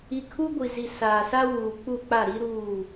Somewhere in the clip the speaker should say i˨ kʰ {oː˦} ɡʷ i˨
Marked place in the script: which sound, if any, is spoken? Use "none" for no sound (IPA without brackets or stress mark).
uː˦